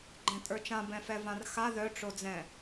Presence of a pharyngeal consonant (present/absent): absent